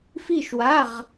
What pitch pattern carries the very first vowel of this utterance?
falling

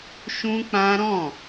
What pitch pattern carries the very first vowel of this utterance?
high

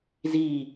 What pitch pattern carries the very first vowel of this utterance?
falling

